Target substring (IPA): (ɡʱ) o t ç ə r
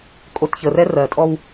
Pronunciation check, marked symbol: incorrect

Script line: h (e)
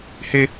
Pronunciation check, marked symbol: correct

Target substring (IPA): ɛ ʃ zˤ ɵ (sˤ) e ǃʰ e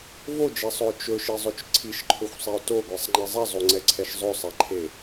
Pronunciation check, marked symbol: correct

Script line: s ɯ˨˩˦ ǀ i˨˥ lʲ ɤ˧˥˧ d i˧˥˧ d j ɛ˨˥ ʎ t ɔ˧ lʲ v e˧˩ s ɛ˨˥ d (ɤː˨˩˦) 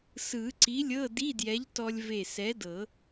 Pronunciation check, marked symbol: incorrect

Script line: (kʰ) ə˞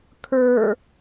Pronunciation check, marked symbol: correct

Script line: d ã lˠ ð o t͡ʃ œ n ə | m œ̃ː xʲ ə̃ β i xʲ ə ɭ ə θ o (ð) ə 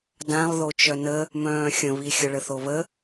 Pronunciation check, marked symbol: incorrect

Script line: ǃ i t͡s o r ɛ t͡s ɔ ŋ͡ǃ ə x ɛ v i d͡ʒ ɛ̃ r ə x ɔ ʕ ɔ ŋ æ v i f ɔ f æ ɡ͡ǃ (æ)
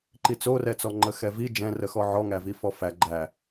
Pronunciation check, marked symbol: correct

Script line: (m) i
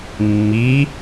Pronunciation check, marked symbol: incorrect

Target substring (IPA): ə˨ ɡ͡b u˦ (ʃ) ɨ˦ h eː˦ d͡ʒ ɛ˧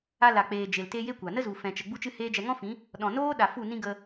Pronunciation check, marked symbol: incorrect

